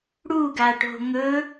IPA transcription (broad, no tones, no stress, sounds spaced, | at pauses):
ɽ u ɡ a ʈ o̤ ŋ ɵ